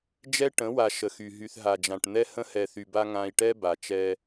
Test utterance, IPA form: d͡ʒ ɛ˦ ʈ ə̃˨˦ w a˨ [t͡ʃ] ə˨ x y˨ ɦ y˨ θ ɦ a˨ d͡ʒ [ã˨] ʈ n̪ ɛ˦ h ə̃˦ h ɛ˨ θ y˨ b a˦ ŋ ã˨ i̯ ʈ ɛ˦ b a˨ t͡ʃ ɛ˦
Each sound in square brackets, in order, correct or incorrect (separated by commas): incorrect, correct